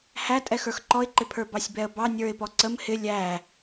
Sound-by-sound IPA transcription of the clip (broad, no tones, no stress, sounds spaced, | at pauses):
h æ tʼ ɛ x ə˞ x ǃ ɔ ɪ̯ ǃ ɪ pʰ ə˞ b ɑ sʲ b ɛ ə̯ b ɑ nʲ ə˞ ɪ̯ p ɔ ǀ ə m h ɪ lʲ æ